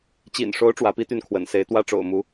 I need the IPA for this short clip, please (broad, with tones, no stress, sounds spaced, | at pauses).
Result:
t͡ɕ ḭ˨˩ n ʂ o˧˥ ʊ̯ ʈ͡ʂ w ä˧˥ p i˥ t̪ y˥˩ n kʰ w ə̰˨˩ n s e˧˥ ɪ̯ t̪ w ä˥ ʈ͡ʂ o̰˨˩ ʊ̯ m u˧˥